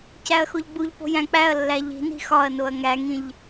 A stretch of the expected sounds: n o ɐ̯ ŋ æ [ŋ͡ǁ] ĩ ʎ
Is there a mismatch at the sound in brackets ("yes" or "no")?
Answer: yes